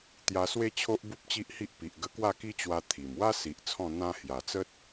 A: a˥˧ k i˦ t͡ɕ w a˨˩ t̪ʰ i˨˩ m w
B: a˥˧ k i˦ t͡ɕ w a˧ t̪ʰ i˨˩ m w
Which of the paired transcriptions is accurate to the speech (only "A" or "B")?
B